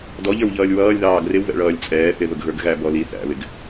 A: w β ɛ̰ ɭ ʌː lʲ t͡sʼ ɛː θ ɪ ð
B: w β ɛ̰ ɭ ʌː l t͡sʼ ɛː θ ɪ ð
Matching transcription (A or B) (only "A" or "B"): A